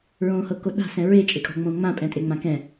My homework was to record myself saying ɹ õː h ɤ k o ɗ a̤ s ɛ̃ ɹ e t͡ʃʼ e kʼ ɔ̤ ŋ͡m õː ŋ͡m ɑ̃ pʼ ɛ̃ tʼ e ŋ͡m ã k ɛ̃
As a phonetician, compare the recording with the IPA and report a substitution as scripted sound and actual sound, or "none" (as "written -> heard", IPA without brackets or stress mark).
ɑ̃ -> ã